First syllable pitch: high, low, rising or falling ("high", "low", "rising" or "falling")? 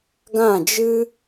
falling